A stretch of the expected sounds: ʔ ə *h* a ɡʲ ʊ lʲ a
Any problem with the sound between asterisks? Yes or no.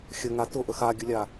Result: yes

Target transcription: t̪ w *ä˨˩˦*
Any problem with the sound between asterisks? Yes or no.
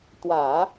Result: no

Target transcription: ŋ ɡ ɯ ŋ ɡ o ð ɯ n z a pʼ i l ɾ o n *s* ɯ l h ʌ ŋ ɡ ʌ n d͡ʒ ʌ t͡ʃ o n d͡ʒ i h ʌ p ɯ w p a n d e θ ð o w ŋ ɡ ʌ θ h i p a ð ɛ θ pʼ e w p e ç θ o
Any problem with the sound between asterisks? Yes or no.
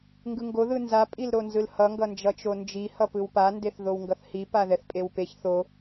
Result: yes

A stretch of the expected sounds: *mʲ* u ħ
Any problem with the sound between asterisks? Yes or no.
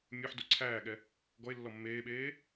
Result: no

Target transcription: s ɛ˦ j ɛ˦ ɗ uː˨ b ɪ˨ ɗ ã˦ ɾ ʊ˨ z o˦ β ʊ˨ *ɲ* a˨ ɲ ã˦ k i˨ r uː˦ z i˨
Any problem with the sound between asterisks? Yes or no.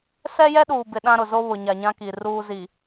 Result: no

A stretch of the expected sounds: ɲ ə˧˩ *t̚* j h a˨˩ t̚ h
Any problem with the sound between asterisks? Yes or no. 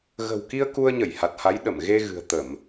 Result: yes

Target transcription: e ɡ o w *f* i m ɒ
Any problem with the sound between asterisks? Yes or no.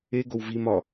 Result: yes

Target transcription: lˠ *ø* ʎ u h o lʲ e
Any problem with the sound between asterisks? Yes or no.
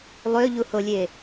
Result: no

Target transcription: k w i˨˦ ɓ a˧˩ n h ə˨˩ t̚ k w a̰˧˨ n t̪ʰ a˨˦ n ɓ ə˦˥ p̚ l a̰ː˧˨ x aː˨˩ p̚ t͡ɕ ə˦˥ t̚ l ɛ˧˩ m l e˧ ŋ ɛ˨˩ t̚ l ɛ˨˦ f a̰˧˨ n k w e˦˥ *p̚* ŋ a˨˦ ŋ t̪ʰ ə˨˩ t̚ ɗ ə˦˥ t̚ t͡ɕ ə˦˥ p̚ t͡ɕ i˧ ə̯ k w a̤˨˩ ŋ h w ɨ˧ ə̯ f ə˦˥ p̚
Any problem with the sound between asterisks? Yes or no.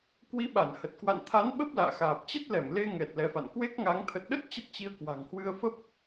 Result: yes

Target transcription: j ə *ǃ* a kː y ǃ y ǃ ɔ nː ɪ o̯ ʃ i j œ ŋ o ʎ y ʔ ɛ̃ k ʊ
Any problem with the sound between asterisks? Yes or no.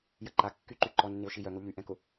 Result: no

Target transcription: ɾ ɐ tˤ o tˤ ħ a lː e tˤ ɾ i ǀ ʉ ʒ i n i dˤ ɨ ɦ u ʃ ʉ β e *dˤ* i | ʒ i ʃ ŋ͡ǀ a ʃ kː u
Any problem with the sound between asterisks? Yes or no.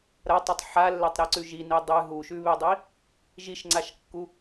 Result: no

